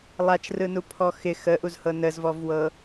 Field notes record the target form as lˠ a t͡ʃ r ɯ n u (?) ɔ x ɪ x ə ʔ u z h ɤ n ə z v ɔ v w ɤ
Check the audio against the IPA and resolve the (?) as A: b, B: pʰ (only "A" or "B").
B